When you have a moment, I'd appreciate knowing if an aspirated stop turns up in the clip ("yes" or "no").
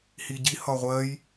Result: no